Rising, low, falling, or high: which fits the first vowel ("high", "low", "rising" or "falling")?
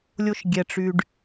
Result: high